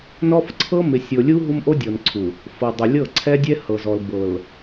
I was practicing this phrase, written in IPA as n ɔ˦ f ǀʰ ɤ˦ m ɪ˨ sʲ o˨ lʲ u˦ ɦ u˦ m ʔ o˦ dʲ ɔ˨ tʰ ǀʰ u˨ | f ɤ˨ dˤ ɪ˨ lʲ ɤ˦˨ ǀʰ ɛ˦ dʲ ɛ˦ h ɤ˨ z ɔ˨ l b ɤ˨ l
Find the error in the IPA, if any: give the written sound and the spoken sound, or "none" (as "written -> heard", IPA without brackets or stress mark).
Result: tʰ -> n